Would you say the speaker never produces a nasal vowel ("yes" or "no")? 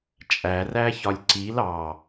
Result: yes